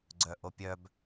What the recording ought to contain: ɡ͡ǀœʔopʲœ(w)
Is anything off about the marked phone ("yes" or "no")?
yes